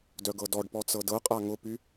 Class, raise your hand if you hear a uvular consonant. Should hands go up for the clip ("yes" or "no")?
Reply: yes